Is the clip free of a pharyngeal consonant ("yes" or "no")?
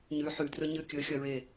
no